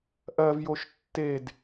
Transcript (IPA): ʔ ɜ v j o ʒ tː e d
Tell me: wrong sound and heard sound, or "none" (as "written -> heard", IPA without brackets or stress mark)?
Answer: ʒ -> ʃ